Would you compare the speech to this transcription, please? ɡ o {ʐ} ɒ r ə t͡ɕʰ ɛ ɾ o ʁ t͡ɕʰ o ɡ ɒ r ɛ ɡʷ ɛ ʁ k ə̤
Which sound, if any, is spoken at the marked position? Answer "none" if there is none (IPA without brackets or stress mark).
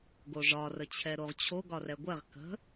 ʐ